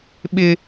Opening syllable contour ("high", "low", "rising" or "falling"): high